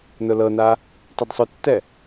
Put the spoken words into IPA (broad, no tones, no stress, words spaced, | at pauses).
nʊlɤna | tˤɛdsˤʊtːɛ